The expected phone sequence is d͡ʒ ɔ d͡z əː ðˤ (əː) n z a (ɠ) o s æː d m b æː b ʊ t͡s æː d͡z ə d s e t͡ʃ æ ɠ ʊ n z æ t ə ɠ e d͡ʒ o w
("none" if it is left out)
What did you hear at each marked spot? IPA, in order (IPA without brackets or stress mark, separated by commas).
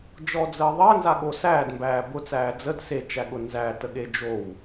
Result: əː, ɠ